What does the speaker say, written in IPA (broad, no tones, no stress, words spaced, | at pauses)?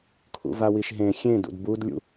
kʰṵvawiʃɦẽ xʲẽ dṵdbud lʲṵ